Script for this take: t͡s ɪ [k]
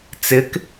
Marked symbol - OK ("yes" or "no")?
yes